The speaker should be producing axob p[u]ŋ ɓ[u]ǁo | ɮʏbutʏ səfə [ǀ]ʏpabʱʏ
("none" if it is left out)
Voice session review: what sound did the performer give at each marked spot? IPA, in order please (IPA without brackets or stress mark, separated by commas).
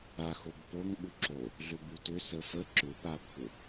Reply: o, u, ǁ